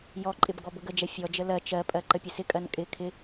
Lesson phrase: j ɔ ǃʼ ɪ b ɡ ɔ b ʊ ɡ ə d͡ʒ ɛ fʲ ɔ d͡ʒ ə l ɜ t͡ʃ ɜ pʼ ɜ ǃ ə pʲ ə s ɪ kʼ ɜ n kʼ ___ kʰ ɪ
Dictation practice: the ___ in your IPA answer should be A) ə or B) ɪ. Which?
B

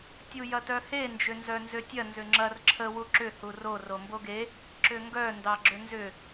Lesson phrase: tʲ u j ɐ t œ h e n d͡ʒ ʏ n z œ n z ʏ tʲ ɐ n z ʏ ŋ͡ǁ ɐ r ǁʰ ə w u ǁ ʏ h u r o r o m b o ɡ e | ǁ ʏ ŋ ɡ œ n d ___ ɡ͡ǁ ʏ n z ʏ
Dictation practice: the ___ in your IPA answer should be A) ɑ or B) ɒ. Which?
A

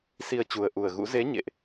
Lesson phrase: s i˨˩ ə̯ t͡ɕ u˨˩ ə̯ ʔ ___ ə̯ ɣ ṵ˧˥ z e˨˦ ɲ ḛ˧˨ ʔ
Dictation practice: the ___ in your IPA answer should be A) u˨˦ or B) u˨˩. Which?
B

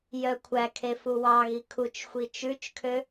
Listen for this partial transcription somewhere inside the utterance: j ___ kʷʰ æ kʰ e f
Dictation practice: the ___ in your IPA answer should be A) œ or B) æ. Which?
A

